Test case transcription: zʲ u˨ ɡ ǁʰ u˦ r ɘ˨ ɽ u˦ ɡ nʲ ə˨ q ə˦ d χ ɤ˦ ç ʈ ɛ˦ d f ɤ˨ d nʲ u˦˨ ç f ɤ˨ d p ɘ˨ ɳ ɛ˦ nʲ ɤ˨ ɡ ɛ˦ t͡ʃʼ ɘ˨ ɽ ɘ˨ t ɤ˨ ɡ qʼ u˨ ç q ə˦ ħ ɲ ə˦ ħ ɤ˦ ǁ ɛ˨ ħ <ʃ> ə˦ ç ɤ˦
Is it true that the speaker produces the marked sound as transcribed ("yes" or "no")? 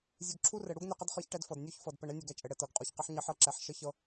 yes